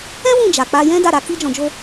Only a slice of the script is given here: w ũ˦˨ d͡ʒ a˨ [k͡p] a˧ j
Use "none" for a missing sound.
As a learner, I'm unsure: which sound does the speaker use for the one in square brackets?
k͡p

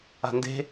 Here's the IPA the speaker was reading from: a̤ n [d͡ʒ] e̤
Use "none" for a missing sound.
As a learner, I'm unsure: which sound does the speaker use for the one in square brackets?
d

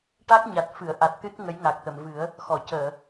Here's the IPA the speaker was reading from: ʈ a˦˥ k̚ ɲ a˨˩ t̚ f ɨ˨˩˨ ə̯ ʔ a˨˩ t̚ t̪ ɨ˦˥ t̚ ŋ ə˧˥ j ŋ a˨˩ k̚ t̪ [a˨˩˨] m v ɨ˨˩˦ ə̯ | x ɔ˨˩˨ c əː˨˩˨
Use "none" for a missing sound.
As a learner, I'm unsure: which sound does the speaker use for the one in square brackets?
ə˨˩˨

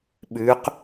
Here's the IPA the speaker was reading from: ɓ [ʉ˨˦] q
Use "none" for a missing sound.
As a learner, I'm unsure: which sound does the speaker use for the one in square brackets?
ʉ˨˦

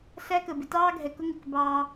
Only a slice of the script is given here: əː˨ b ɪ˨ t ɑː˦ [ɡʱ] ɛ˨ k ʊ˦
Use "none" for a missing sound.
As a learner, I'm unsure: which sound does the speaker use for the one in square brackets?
ɡʱ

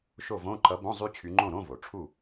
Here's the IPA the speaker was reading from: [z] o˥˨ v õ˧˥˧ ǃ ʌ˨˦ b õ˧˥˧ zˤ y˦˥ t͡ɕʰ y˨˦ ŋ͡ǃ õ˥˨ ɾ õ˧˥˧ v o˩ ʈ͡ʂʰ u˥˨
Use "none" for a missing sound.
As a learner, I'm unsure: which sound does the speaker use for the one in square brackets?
ʃ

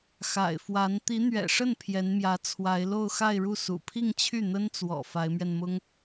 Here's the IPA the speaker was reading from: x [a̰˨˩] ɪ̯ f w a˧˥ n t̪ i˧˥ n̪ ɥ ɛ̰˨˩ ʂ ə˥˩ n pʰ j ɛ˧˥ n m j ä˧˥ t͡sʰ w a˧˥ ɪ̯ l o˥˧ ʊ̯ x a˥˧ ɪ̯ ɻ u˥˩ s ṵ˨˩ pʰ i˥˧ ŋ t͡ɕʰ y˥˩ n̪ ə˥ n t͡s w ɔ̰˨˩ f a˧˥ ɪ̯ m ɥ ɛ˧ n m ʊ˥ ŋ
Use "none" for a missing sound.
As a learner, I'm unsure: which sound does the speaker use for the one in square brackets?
a̰˨˩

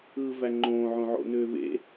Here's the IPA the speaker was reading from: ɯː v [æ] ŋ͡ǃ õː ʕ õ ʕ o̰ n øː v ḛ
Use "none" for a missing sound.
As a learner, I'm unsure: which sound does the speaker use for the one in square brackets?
æ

